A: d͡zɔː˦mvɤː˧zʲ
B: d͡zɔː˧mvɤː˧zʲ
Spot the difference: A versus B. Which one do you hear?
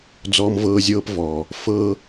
B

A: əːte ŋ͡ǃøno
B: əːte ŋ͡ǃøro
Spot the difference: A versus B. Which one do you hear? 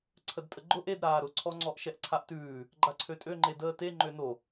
A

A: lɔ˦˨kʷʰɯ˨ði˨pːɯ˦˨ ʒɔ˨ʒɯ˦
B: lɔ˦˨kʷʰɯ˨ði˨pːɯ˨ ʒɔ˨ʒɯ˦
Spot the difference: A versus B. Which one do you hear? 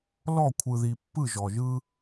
A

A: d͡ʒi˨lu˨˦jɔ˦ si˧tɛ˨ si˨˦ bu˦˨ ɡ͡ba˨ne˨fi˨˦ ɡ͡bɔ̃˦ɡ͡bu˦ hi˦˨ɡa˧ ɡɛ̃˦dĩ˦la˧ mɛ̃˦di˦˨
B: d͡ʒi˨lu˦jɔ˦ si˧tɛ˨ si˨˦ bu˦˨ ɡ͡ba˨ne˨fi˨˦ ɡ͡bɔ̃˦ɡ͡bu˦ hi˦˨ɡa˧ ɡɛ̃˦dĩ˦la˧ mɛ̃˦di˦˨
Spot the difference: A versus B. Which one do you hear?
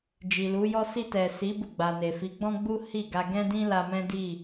A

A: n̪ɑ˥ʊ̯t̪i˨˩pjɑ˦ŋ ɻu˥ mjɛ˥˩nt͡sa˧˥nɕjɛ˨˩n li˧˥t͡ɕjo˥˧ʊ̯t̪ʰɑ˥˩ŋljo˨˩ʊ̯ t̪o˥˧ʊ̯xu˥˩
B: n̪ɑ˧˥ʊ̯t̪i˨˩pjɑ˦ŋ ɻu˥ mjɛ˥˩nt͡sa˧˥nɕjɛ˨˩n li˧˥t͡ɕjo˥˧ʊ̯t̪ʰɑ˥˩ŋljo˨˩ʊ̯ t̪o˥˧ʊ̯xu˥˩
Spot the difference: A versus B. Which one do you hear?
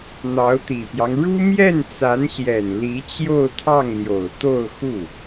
B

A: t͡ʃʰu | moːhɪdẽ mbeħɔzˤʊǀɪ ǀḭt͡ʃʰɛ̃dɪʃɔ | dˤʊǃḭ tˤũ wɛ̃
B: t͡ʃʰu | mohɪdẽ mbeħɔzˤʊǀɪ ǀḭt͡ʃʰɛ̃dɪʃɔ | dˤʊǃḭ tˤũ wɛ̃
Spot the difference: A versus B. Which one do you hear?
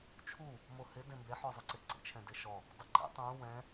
B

